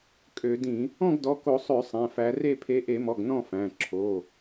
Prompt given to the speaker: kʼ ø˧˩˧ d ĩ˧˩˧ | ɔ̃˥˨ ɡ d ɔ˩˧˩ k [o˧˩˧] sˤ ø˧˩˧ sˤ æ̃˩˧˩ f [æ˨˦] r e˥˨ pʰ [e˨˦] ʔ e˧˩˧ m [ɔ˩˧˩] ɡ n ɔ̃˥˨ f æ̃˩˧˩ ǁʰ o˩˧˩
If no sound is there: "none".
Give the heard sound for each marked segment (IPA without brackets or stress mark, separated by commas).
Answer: o˧˩˧, æ˨˦, e˨˦, ɔ˩˧˩